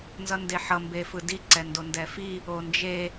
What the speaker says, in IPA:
n z ʌ n d e ħ ʌ m b e f ɯ d i ǀ ɛ n d o n d ɛ f i | o n d͡ʒ e

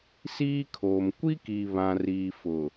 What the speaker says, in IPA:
s iː˦ kʰ oː˨ m kʷ i˦ k i˨ β ã˨ r iː˨ f ʊ˨

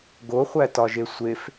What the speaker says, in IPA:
ɡ o χʷ æ t ɒ ʒ e sʷ e f

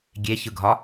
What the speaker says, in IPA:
ɡʲ e ç ɯ ɡʱ ɒ

